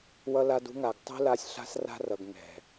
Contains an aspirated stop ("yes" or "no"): no